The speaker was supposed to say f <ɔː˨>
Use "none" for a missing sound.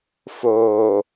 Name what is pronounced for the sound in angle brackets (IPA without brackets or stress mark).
oː˨